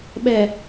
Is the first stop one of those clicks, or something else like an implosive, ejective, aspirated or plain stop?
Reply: implosive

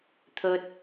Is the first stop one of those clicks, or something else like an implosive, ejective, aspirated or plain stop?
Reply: aspirated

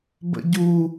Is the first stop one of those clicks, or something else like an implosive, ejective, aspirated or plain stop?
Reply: plain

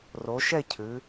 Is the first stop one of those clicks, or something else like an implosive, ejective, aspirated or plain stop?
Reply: aspirated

